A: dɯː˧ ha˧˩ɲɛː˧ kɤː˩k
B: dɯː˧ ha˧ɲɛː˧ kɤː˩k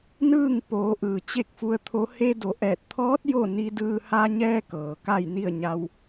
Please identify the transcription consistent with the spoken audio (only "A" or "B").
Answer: B